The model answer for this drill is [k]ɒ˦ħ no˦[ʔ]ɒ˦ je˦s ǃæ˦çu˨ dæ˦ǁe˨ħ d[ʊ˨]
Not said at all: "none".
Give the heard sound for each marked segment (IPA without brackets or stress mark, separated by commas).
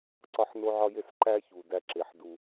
ǀ, ʕ, u˨